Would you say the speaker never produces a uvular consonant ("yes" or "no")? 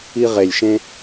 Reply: no